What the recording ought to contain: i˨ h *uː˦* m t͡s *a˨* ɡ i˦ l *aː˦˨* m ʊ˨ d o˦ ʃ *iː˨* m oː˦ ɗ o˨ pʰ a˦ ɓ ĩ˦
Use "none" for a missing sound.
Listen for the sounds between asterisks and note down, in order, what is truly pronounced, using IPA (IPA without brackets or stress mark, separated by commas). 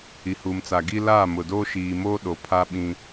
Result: uː˨, a˨, aː˦˨, iː˨